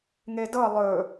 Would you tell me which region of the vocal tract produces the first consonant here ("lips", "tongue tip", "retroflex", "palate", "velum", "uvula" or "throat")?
velum